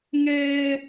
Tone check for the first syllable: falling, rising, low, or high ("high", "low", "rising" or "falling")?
high